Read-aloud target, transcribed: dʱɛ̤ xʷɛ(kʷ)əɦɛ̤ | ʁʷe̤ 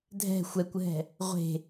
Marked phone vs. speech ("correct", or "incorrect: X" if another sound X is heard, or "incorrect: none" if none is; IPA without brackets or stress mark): correct